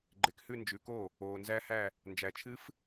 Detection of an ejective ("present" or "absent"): absent